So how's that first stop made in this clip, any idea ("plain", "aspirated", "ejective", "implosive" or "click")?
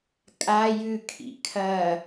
ejective